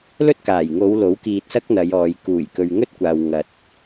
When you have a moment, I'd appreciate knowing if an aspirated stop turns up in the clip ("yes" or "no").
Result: no